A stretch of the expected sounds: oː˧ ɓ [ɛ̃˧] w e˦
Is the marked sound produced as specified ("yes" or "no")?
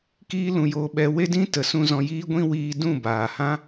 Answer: no